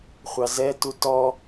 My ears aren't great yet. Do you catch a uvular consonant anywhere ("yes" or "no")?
yes